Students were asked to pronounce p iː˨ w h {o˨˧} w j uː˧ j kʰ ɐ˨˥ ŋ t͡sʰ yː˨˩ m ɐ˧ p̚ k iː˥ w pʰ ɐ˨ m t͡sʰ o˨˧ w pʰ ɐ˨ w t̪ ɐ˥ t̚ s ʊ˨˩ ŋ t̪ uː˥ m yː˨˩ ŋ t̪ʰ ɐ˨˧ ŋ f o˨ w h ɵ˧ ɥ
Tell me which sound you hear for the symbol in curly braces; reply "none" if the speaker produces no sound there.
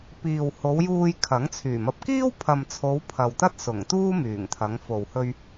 o˨˧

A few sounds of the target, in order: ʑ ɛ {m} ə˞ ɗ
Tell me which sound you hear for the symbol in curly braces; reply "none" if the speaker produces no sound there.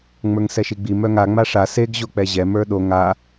m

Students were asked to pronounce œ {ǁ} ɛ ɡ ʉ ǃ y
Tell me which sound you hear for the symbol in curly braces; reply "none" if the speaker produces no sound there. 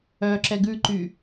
ǁ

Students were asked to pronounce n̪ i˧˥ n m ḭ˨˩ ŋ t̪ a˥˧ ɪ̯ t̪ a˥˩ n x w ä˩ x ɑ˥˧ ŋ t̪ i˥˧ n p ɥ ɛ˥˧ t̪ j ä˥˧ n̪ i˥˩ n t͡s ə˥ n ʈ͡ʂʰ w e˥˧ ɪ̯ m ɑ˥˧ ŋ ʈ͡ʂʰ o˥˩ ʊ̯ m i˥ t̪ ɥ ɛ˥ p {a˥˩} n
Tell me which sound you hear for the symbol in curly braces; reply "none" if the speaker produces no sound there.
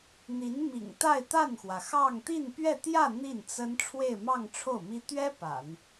a̰˨˩˦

